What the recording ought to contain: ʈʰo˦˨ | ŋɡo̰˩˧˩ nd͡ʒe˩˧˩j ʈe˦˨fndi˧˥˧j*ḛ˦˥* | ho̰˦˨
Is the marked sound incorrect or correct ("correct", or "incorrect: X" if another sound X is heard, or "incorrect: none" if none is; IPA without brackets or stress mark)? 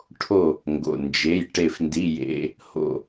correct